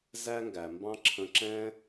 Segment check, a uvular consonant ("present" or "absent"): absent